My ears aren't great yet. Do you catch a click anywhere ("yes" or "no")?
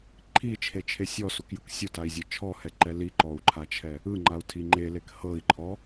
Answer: yes